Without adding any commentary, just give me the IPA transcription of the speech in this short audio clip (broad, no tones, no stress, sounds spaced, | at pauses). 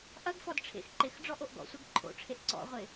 ʔ ɐ ɡ f ɔ d ʈ͡ʂʰ ḛ x ǃ ɪ x ɖ͡ʐ ɔ ʔ o ʔ ɡ ɔ̰ sʷ ɛ ɡ ǃʰ o̰ ʈ͡ʂʰ e ʔ ǀ ɔ̰ ʁʷ ɪ